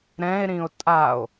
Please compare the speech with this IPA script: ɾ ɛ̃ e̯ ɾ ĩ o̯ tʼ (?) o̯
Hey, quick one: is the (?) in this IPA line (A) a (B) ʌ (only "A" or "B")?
A